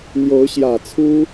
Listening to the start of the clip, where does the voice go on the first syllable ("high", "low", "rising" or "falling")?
rising